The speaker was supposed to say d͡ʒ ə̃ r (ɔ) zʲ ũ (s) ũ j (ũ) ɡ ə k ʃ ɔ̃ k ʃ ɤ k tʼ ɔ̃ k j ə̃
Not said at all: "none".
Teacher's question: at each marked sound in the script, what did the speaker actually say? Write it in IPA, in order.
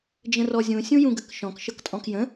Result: ɔ, sʲ, ũ

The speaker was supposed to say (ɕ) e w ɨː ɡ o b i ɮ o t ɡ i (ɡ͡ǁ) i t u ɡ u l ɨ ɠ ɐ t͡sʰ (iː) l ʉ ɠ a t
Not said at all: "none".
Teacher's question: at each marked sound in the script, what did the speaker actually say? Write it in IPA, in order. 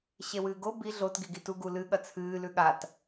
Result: ɕ, ɡ, ɨː

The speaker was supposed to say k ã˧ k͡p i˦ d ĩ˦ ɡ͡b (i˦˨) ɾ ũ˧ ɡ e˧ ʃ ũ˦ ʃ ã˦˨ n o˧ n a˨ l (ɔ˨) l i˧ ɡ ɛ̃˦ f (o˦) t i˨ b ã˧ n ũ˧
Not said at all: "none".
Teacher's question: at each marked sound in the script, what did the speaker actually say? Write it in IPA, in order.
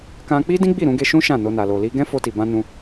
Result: i˦˨, o˨, o˧

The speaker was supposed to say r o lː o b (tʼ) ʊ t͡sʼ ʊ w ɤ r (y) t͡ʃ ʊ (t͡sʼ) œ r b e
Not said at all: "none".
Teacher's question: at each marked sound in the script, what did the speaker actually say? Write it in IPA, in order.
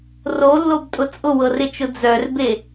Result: tʼ, ɪ, d͡z

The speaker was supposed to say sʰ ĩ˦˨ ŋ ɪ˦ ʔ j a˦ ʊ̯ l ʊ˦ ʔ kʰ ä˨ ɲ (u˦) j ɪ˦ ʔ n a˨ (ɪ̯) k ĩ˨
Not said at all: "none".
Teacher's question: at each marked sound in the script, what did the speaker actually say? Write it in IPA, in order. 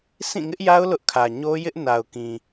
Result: o˦, ʊ̯

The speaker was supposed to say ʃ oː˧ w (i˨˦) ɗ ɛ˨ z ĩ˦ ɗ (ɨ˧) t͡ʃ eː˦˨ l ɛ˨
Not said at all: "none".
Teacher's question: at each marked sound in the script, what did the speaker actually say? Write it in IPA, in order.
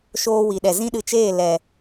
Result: i˨, ɨ˧

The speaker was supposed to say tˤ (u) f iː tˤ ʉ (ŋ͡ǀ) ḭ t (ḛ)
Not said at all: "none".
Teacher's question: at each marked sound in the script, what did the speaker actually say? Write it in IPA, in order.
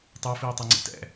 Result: o, ŋ͡ǀ, ɛ̰

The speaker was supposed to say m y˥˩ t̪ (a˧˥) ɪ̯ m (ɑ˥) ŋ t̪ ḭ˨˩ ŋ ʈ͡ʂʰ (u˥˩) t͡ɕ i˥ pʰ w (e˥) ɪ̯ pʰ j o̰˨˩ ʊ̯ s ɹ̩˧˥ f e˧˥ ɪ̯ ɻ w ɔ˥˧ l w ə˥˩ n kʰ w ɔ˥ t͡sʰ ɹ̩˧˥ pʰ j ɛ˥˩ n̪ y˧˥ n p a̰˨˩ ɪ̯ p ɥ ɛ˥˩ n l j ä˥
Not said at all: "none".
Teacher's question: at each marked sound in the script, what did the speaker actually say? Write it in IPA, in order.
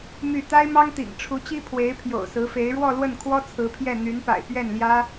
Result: a˥, ɑ˥, u˧˥, e˧˥

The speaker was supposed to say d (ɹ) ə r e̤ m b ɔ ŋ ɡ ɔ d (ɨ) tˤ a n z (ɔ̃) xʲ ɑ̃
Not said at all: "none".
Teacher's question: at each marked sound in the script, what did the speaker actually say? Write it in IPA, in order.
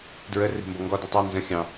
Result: ɹ, ɨ, ə̃

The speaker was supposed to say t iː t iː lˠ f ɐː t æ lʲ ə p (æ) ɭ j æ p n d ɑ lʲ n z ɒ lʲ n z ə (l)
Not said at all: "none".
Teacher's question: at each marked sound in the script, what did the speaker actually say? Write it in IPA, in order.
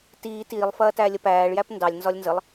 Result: æː, lˠ

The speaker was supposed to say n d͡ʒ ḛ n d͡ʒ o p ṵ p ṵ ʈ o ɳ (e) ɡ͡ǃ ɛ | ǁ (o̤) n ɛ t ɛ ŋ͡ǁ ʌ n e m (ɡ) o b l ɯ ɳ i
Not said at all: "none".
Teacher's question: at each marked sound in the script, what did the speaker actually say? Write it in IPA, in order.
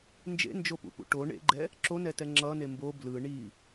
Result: ḛ, o, b

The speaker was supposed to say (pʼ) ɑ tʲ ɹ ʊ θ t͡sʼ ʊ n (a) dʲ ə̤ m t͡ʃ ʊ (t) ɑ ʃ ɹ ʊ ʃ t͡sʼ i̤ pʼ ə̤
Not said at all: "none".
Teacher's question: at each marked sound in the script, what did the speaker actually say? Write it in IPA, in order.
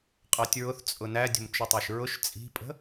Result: qʼ, æ, tˤ

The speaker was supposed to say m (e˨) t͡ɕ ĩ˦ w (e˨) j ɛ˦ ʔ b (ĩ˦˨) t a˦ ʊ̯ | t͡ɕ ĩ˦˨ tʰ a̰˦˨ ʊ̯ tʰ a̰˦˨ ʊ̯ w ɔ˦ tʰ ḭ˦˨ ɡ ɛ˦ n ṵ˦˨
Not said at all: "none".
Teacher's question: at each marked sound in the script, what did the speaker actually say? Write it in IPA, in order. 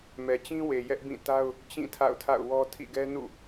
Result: ɛ˨, e˨, ĩ˦˨

